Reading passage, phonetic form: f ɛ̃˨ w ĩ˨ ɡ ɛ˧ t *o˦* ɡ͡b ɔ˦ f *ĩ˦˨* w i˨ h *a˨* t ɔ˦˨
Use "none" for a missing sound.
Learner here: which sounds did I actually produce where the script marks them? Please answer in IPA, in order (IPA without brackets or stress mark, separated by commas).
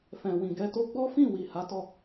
o˦, ĩ˦˨, a˨˦